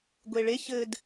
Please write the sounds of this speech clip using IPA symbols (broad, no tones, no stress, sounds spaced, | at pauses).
ɡʷ e ɭ e ç ɘː d